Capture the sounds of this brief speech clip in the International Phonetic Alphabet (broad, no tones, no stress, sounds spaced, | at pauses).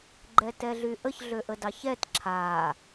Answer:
ɡ͡ǃ ɛ t ɛ ɮ y ʔ ə ç ɮ ø ʔ ə d ɑ ç ɛ t ǁʰ a